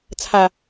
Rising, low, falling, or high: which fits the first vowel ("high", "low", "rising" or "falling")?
low